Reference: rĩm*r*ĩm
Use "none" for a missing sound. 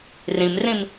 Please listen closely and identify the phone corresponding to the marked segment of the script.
r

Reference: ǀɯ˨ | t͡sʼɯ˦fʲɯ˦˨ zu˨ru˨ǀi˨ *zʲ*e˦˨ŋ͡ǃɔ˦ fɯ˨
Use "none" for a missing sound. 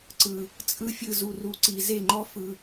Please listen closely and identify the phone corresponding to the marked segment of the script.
z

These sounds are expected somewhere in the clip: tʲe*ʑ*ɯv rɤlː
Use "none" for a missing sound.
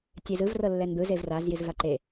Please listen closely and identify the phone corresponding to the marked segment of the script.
z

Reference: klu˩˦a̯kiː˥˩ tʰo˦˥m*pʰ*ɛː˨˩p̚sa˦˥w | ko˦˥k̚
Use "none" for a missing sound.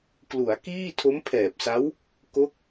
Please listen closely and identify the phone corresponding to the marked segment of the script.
pʰ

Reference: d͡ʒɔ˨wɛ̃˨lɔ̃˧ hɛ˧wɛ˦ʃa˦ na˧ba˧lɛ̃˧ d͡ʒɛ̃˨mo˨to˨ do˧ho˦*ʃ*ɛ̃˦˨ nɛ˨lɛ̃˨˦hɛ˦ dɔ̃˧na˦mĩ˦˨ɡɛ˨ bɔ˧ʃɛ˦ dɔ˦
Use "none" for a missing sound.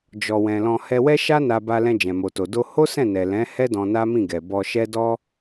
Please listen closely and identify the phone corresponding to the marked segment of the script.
s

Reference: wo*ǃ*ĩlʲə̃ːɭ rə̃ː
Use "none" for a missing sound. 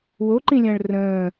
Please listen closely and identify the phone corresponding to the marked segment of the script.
ǃ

